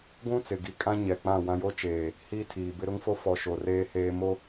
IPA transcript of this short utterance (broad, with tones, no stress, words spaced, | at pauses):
ɡʷũ˦ t͡sɪ˨ɡi˦ kʼã˦ɲɛ˨ k͡pã˦˨wã˦ jo˦t͡ʃeː˨ | hiː˦tʰiː˨bɪ˦ ɾʊ˦ŋ fo˦fɔ˨ ʃoː˨r eː˦heː˦ mo˦